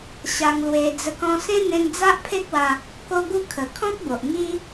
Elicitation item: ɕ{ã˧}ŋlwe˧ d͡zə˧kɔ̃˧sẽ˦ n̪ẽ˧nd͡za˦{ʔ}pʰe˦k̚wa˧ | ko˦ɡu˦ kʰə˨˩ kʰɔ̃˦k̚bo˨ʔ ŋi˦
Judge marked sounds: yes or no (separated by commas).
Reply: no, yes